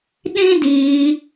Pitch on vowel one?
high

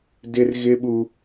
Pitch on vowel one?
high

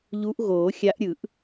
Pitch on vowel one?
rising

